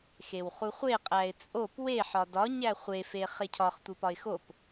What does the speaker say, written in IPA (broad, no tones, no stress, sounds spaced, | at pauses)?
x e w χ u χʷ e qʼ æ ɪ̯ t͡sʼ o p w e ħ ɒ d ɒ ɲ æ χʷ e f e χ e cʰ ɒ χ tʷ i p ɒ ɪ̯ x o p